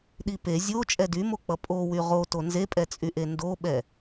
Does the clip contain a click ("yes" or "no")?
no